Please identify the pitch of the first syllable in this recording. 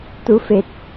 rising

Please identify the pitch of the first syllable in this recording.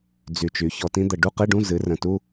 low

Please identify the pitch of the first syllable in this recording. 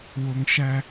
low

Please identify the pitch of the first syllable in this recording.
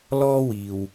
high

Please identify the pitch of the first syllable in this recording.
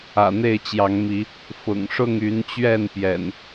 low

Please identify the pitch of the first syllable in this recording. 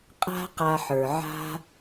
high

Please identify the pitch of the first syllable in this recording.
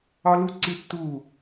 high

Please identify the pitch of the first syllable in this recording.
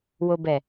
low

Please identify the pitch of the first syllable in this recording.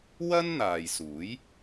high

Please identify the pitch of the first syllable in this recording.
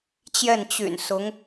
falling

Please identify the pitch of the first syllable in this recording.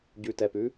low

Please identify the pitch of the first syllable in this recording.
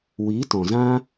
rising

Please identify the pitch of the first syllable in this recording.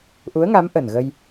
rising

